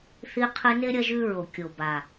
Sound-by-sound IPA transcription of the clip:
θ i˧ qʰ ɨ˧ n e˦ ɾʲ ɐ˦ ʒ ʉ˦ ɹ o˨ kʲ o˨ b a˨

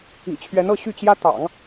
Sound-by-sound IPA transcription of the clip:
ḭ˨˩ t͡ɕʰ ɥ ɛ˧˥ n ɤ˥˧ ɕ y˥˩ t͡ɕ j ä˥ t̪ ɑ̰˨˩˦ ŋ

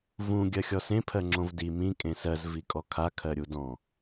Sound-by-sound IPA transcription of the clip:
v ũ ɡʲ ɜ xʲ ɔ s ẽ pʰ ɜ ŋ͡ǁ õ v d i m ĩ kʼ ẽ s ɜ z v i kʼ ɔ kʰ a kʰ ɜ ɾʲ u d ɔ̃

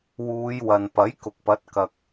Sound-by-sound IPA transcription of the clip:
w uː˨˧ j w ɐ˨ n p ɐ˨˥ j k ʊ˨ k̚ p ɐ˨˥ t̚ k ɐ˨ k̚

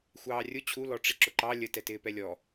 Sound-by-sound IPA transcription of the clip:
xʷ ɑː rʲ ʊ t͡ɕʰ u l ɔ ʈ͡ʂ ɪ ǁ ʊ ǃ ɑ lʲ ə t ɛ t ɪː p ɛ lʲ ɔ

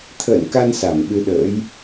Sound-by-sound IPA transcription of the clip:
t̪ʰ ə̰ː˧˨ n k a˧ n s a˧˩ m ɓ ɨ˧ ɗ ə̰ː˧˥ j

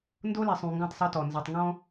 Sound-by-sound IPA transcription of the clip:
n d o˦ l ɛ˨ sˤ ũ˨ ŋ ɡ ɔ̃˦˨ tˤ sˤ ø˦ t ɔ˨ n z œ˨ tˤ ŋ ɔ̃˦

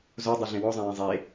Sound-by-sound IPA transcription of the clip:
z o dˤ e ɮ ẽ w ɔ zˤ ã j ẽ zˤ e

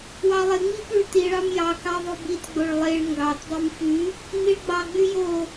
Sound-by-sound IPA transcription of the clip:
w ɑ lˠ e ŋ͡m i p y ɭ t i ɭ ɑ m j ɑ k ɑ ðˤ o b i t ɡ͡b o ɭ lˠ e ɭ ŋ ɡ ɑ t dˤ ʉ m f y | n̪ i ɭ ɡ͡b ɑ ɡ͡b y j o

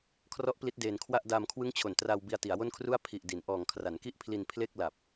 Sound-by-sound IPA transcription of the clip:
kʰ r ɔ˦˥ ʔ p l i˦˥ t̚ d eː˧ n kʰ w a˥˩ ʔ d aː˧ m kʰ w ɯ˦˥ ŋ t͡ɕʰ o˨˩ n t r a˧ w b i˧ a̯ t i˩˦ a̯ w o˥˩ n kʰ r u˥˩ a̯ pʰ i˨˩ ʔ d i˩˦ n ʔ ɔː˨˩ ŋ kʰ r a˩˦ n k i˥˩ ʔ pʰ l i˧ n pʰ l e˥˩ k̚ l a˨˩ p̚

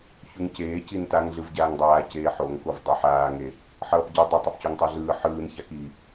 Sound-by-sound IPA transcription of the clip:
ç u ŋ c eː c i n t a ŋ ɮ ɯ v ɟ aː ŋ dˤ aː c eː ħ o ŋ k o v dˤ a ħ aː ŋ e | ħ ʌː p ɟ ɯ dˤ ɛ tˤ o p c o ŋ tˤ ɛ ɮ ɯː ħ ɯː n ç a k i

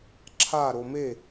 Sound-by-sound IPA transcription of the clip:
ǁʰ a ɾ o m e

